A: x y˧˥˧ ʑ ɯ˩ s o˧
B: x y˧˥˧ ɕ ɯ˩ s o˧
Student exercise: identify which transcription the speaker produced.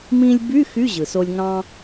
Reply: A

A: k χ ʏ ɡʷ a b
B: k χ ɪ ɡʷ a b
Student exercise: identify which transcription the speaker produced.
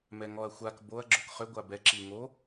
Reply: A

